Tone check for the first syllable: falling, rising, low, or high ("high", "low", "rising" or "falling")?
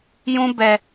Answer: high